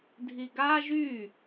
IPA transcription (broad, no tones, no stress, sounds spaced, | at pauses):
dʱ i ɡ a ʒ y